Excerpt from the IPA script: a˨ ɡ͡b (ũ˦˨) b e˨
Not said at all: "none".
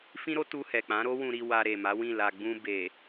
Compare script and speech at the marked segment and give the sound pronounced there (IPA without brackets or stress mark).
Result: ũ˧